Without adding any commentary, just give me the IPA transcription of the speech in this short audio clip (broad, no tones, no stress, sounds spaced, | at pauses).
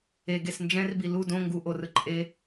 e ɡ e s n d͡ʒ ɛ̃ r b i l u d õ ŋ ɡ u ʔ o r ɯ ǃʼ e